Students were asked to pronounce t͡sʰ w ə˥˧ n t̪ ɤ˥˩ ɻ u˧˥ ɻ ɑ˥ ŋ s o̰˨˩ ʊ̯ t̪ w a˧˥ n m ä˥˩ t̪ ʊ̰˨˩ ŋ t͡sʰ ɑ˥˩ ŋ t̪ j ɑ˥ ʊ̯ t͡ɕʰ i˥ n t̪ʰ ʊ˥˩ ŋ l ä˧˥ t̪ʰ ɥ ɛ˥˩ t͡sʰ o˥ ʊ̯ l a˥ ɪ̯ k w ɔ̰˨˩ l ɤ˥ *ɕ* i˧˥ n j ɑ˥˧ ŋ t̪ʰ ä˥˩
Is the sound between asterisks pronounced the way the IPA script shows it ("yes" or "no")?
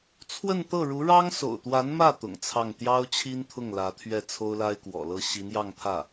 yes